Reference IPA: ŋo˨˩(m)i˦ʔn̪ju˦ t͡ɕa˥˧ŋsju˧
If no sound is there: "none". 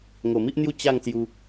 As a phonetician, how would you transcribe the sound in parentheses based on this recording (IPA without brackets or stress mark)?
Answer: m